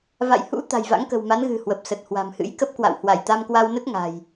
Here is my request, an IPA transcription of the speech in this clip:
v a̰˧˨ j h ṵ˧˥ t̪ a̤˨˩ j v a̰˧˥ ŋ k ə̤˨˩ w m a˨˦ n ɣ ɨ̤˨˩ h w ə˨˩ p̚ s ə˨˩ t̚ h w a̤˨˩ m h ɨ̰˧˥ j k ə˦˥ p̚ k w a̰˧˨ w h w a˧˩ j t̪ a˧ m k w a˧ w n ə˦˥ t̚ ŋ a̤˨˩ j

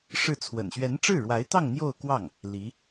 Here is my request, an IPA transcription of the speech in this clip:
ʂ ɻ̩˥˩ t͡sʰ w ə̰˨˩ n ɕ ɥ ɛ˧˥ n ʈ͡ʂ ɻ̩˥˩ ɻ w a˧˥ ɪ̯ t̪ ɑ˥˧ ŋ n̪ j o˥˧ ʊ̯ k w ɑ˥˩ ŋ | l i˧˥

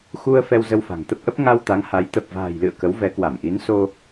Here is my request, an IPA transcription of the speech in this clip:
x u˧ ə̯ f ɛ˧ w z ə˧ w f a̤˨˩ ŋ t̪ ə˦˥ p̚ ʔ ə˦˥ p̚ ŋ a˧ w t̪ a˨˦ ŋ h a˨˦ j t̪ ə˨˩ p̚ v a̤ː˨˩ j l ɨ̰˧˨ ə̯ k ə˨˦ w v ɛ˨˦ k w a˧˩ m ʔ i˨˦ n s o˧

